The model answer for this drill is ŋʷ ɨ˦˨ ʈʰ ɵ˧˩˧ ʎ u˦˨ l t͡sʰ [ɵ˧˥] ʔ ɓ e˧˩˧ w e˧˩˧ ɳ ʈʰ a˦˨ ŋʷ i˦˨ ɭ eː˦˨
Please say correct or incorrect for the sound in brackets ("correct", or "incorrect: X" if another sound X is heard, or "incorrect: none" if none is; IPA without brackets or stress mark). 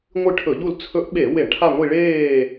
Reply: correct